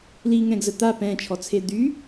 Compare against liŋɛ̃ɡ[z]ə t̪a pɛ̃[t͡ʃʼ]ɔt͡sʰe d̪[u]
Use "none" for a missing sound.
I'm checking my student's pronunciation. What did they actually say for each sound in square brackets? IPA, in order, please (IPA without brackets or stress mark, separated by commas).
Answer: z, t͡ʃʰ, y